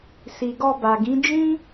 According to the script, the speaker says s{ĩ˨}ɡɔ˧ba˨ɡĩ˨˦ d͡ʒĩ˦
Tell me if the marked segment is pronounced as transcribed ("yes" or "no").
no